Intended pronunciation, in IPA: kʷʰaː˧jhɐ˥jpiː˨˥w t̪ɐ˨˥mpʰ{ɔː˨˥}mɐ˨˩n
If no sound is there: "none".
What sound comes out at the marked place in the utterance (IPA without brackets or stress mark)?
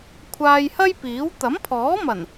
ɔː˨˥